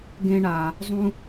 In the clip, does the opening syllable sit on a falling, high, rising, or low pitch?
high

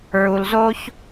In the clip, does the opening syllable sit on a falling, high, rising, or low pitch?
low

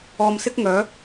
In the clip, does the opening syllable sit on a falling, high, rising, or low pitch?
low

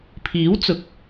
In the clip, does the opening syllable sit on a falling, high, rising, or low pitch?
rising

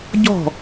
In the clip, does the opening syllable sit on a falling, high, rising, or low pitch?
falling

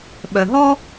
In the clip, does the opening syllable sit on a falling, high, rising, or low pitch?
low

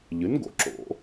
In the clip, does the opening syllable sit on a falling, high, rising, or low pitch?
rising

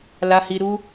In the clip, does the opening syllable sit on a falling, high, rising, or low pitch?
high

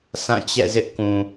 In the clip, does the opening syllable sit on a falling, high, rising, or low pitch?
falling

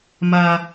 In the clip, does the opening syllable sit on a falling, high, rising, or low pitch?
high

